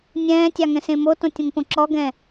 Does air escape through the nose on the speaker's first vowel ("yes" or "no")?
yes